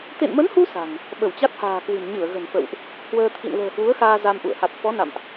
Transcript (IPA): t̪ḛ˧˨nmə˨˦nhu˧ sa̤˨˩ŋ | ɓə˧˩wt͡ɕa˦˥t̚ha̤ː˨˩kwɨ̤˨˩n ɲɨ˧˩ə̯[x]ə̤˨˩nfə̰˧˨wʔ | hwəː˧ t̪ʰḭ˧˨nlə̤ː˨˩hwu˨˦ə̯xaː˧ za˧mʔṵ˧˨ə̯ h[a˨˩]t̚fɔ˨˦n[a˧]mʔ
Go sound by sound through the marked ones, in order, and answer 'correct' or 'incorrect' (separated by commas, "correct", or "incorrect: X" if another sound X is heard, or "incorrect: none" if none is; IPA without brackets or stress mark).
incorrect: ɣ, correct, incorrect: a̰˧˨